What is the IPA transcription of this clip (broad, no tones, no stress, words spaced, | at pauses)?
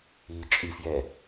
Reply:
iːt͡ʃʼifjɛ